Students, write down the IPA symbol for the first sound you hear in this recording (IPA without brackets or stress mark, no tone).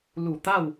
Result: l